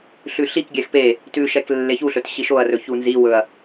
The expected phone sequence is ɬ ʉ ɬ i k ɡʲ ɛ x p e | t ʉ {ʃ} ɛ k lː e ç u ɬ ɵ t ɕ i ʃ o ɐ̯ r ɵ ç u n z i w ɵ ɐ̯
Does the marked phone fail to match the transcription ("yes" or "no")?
no